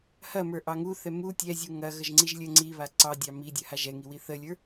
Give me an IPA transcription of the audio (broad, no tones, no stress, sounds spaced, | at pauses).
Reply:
h ɐ m ə˞ ʔ ɑ ŋ u θ ɛ m u tʲ ɛ zʲ u ŋ ɐ ɣ ə ʒ ŋ͡ǀ i ʒ lʲ ə ŋ͡ǀ i β a ǀ ɑ dʲ ɑ m i dʲ ɐ h a ʒ ɛ ŋ i w i θ ə lʲ ə˞